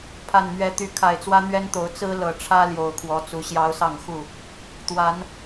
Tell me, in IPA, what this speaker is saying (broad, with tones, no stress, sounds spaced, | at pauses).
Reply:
pʰ a˨˩ n m ɥ ɛ˨˦ t̪ y˨˦ kʰ a˨˩ ɪ̯ t͡s w ä˦ n̪ ɥ ɛ˦ n t̪ o˨˦ ʊ̯ t͡s ɹ̩˦ l ɤ˨˩ ʈ͡ʂʰ ä˦ l j o˨˩ ʊ̯ kʰ w ɔ˨˦ t͡s u˨˦ ɕ j ɑ˦ ʊ̯ s ɑ˥˨ ŋ x u˥˨ | t̪ w a˨˦ n